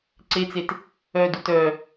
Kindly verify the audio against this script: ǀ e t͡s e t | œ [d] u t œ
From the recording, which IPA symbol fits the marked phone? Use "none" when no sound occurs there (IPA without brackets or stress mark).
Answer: d